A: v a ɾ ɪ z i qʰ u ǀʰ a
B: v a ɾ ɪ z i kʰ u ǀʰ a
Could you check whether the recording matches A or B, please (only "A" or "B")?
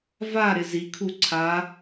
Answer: B